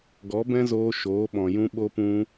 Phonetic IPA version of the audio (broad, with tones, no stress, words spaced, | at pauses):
ɡɔ˨˦bɛ̃˦zoː˧ ʃoː˨˦ɓɔ̃˨ jũ˧ ɓo˧pũ˧